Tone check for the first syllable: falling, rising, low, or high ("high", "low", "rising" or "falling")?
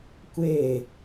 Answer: falling